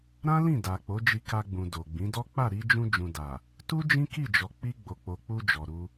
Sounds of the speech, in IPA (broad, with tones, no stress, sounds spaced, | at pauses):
ɾ ã˦ l ĩ˦˨ d a˨ k͡p o˨˦ d͡ʒ i˧ k a˧ ɡ͡b ũ˨ d o˨ ɡ͡b ĩ˨˦ d ɔ˦ k͡p a˦˨ ɾ i˧ d͡ʒ ũ˧ d͡ʒ ũ˨ d a˨ | t u˦ d͡ʒ ĩ˦ k i˦˨ d͡ʒ ɔ˨ k͡p i˧ ɡ͡b o˨ k͡p o˨ k͡p u˧ d͡ʒ ɔ˨ ɾ u˧